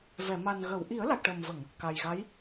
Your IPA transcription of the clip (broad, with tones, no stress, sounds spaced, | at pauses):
v ɛ˨˩˨ m a˨˩ n ɣ ə˨˩˨ w ʔ i˨˩˦ ə̯ l a˨˩ k̚ ʈ ə˨˩ m v ə˨˩˨ ŋ | k a˨˩ j ɣ a˧˥ j